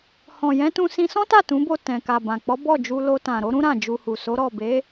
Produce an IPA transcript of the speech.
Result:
h ɔ̃˨ j ɛ̃˨˦ t ũ˧ s ĩ˧ s ɔ̃˦ t a˦˨ t ũ˨˦ b o˦˨ t ɛ̃˨ k a˨ b ã˨ k͡p ɔ˨˦ b ɔ˦˨ d͡ʒ u˧ l o˧ t ã˨ ɾ o˨˦ ɾ ũ˦ ɾ ã˦˨ d͡ʒ u˧ h u˨ s o˨˦ ɾ ɔ˦˨ b e˨˦

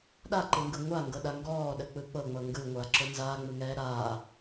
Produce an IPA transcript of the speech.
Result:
ɗ a ǃ ɯ ŋ ɡ ɯ ŋʷ a ŋ ɡ ɤ ɗ a ŋ ɡ ɔː ɗ ə k͡p ɯ k͡p ɤ ŋ͡m ɤ ŋ ɡ ɯ ŋʷ aː ǁ ʊ n z aː ŋ͡m ɯ ŋ ɛː ɾ aː

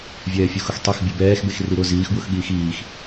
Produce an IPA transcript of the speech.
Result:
vʲ ɛː fʲ u x ʊ x tˤ ɛ x bʲ u b ɛː x b e x r i ɾ ʊ z iː x b w ʊ x ɠ iː x iː x

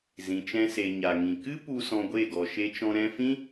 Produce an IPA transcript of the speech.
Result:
z ĩ˨ t͡ʃ ɛ̃˧ s e˨ ɲ a˨ ŋ ĩ˨ k ɨ˦ p u˧ s ɔ̃˧ ɡʷ e˦˨ ɡ ɔ˨ ʃ e˧ t͡ʃ ɔ̃˧ ɾ ɛ̃˧ f ĩ˦

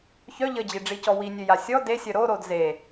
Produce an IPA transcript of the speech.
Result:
ç œ ʎ ə d͡ʑ i ɖ͡ʐ i c ɔ w i nʲ ø j a sʲ ɔ d e sʲ œ ɾ o ɾ o d z e

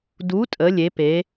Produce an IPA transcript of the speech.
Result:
d u˨˥ tʼ ə˩˧ lʲ e˩˧ p e˩˧

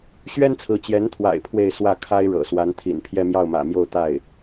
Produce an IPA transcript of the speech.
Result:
ɕ ɥ ɛ˥ n t͡sʰ ɹ̩˧˥ t͡ɕ j ɛ˧˥ n t̪ʰ w a̰˨˩ ɪ̯ pʰ w e˥˧ ɪ̯ s w ä˥˩ kʰ a˥ ɪ̯ ɻ ɤ̰˨˩ s w a˧˥ n t̪ʰ ḭ˨˩ n pʰ j ɛ˥˧ m j ɑ˥˩ ʊ̯ m ä̰˨˩ m j o˥˧ ʊ̯ t̪ a˥˩ ɪ̯

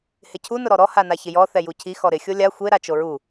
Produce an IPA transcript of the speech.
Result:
h ɪ cʰ u n ʊ ɾ ɔ ɾ ɔ h a n a ç ɪ j ɔ θ ɛ j u cʰ i x ɔ ɾ ɪ xʲ o lʲ a xʷ e ɾ a t͡ʃ o ɹ u

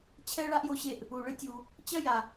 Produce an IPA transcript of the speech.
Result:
t͡ɕʰ ɛ˥ ɭ a˥ ʔ j o˧ ɕ e˧ ʔ | u˩ ɭ ɨ˥ tʲ u˩ | t͡ɕ ɐ˥ j a˩

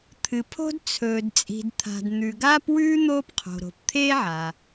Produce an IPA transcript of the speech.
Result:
t̪ʰ ɨ˩ pʰ o̤˥ d t͡sʰ ɵː˩ d t͡sʼ i̤˩ d t̪ʰ a̤˩ d n̪ ʉ˩ ɡ aː˥ p w ʉː˥ n̪ oː˥ p qʰ o̤˩ ɾ o̤˩ p t̪ʰ eː˥ ʕ a˩

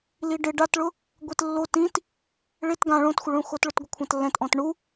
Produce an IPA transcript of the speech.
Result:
l i ɖ ɪ ɖ a t ɭ ʊ | ɡʷ e t lː o t ĩ t | ɭ e t ɡ ã ɭ õ t xʷ ɪ ɭ ũ x o t ɭ ʊ t ɡʷ ɪ kʷʰ ã t lː ɛ̃ t ʔ ɔ̃ t ɳ u

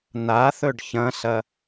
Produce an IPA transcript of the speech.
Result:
n̪ a θ ɵ ɖ ç ɐ̃ s ɐ

